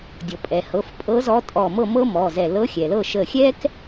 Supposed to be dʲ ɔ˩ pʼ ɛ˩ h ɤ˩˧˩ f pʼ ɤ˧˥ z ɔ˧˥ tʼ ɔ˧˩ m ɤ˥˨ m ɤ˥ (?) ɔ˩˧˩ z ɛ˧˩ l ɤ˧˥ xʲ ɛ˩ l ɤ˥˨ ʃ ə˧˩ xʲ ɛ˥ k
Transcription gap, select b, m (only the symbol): m